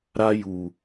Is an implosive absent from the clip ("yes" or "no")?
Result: yes